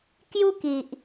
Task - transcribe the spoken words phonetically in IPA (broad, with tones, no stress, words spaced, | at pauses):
kju˦ki˨ʔ